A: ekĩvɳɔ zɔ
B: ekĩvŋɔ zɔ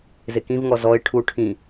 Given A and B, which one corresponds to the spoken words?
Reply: B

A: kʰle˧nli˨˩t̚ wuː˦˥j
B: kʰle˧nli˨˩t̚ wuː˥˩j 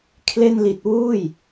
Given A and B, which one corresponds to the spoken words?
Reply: B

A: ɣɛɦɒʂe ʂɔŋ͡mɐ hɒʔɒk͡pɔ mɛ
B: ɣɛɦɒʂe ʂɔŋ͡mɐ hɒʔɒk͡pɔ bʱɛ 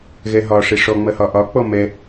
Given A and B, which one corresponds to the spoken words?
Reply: A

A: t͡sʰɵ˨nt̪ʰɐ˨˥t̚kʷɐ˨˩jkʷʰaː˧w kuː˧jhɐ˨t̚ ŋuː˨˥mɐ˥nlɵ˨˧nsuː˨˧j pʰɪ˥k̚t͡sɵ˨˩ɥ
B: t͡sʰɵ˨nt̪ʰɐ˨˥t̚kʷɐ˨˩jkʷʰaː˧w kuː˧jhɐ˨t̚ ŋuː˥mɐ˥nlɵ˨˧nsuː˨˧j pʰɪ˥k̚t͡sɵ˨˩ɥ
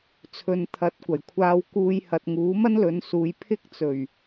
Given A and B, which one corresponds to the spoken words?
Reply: A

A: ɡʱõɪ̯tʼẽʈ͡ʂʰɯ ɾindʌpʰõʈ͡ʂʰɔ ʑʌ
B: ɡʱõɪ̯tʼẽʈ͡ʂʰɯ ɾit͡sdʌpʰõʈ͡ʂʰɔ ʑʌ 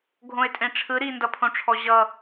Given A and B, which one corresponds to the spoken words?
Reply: A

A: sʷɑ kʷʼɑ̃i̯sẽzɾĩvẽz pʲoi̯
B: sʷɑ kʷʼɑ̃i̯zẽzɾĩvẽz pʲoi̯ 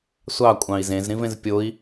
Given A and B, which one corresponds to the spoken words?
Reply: B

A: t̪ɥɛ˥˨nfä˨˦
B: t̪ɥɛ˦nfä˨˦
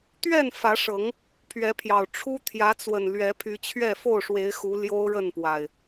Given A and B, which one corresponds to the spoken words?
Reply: A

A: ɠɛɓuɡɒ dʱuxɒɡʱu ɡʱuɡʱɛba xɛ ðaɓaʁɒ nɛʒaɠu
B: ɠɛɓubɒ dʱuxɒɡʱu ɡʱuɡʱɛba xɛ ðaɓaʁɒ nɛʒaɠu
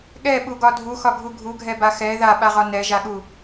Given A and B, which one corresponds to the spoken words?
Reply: A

